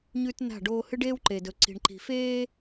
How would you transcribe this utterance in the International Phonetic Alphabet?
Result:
ɲ ʉ˦ t n a̤˦˨ ɖ oː˦ h ɨ˦ ɖ eː˦ w ǃ eː˨ d ɵ˨ ǀ i̤˨ ɳ ǃ i̤˨ f eː˦

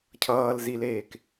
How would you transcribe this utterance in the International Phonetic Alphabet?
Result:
cʰ ʌː l z i l eː k

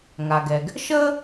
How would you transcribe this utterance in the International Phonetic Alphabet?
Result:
ŋ a˩ ɡ ɛ˩ ɡ | ʃ əː˥

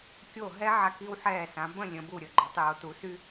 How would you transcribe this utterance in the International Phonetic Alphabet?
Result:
kʲ o˧˩ ɦ ɛ˥ ʕ a˧ k i˧ w ħ ɛː˧˩ s ã˩˧ b ə̃˥˧ lʲ ə̃˩˧ b u˧˩ ɾʲ ə˧˩ ɡ͡ǃ ø˩˧ tˤ j o˩˧ t u˩˧ s y˥

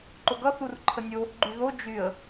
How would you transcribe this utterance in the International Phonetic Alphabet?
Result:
ǃ o ɡ ʌ θ u r ǃʰ ə nʲ o | ɡ͡ǃ y ð o d͡ʒ y ə̯

